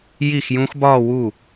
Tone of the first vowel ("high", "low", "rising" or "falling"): falling